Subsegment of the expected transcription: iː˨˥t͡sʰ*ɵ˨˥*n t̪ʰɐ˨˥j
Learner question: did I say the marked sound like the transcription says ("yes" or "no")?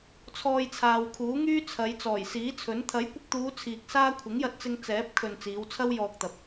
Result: yes